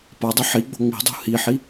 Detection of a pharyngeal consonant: present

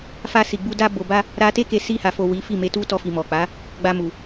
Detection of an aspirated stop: absent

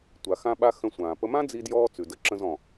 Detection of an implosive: present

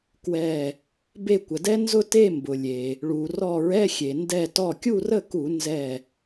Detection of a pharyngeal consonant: absent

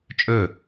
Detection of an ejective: present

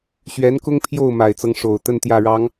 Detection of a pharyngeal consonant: absent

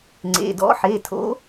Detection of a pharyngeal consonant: present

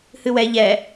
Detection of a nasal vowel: absent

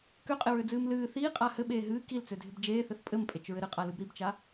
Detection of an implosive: present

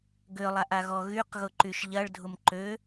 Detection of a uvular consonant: present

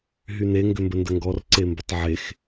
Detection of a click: present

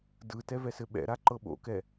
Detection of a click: present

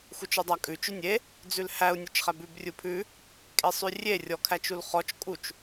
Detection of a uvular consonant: present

